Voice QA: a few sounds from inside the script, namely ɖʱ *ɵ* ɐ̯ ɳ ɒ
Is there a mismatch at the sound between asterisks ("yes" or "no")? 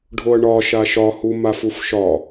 yes